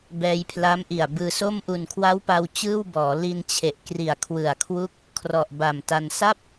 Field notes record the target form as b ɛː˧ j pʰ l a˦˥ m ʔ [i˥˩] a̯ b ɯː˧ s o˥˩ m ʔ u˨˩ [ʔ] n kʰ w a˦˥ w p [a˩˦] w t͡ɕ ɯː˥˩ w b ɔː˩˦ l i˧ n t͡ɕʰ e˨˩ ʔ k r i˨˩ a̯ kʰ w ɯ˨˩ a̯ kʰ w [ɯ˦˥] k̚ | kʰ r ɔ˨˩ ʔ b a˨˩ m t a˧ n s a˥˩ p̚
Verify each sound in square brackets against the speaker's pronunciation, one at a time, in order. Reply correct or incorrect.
incorrect: i˨˩, incorrect: none, incorrect: a˧, incorrect: u˦˥

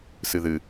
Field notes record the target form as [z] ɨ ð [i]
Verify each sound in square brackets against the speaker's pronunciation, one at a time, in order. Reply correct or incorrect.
incorrect: s, incorrect: ɨ

